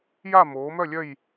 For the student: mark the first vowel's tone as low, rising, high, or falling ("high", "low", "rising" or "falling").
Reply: falling